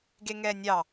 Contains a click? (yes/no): no